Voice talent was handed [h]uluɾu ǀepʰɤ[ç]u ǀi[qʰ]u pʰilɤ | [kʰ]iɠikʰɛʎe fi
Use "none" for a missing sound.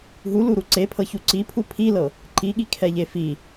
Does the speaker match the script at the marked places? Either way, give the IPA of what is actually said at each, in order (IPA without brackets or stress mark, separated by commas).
ɦ, ç, pʰ, ǃ